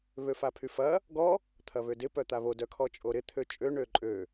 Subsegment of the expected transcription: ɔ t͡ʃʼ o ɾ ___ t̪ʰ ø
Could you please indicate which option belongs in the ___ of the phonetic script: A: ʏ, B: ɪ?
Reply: B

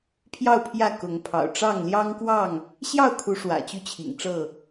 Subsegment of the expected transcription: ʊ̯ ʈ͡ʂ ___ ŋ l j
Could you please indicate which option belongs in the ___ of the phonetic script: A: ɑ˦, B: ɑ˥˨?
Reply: B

